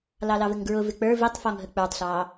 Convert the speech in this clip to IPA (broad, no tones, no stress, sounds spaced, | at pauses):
l ɑ l ɑ v ɪ ŋ ɡ ɹ ʊ v ɪ k͡p ə˞ v i tˤ f ɔ ŋ ɦ ə k͡p ə˞ tˤ ɬ ɑ